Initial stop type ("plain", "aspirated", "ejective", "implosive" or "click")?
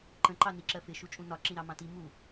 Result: click